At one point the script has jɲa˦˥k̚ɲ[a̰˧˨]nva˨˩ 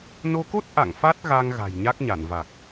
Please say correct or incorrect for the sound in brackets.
incorrect